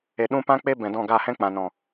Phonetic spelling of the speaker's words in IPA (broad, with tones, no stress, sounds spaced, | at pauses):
e˨ ɗ ũ˧ p ã˦ k͡p e˦ b ɛ̃˨ d ɔ̃˦˨ ɡ a˦˨ h ɛ̃˦ k͡p ã˨ n ɔ̃˨